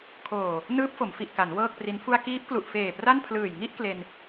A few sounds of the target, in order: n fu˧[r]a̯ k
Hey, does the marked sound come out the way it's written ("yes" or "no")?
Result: no